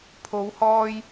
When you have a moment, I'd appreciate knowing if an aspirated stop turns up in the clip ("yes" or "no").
yes